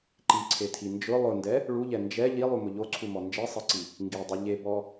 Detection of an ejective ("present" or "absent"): absent